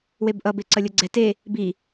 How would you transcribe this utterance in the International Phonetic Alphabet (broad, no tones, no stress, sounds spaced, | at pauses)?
w e b ʔ ʌ b e ǀ ʌ lʲ ɤ ɡ͡ǀ ɛ t e | b i